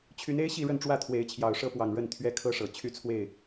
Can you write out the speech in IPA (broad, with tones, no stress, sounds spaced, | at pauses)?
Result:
t͡ɕʰ y˨˦ n e˦ ɪ̯ ɕ i˥˨ ɻ ə˥˨ n ʈ͡ʂ w ä˥˨ t̪ʰ w e˨˦ ɪ̯ t͡ɕʰ j ɑ˨˩ ʊ̯ ʂ ɤ˦ p w ɑ˨˩ ŋ ɻ ə˥˨ n t̪ʰ ɥ ɛ˦ kʰ ɤ˦ ʂ ɤ˨˩ t͡ɕʰ y˥˨ t͡sʰ w e˥˨ ɪ̯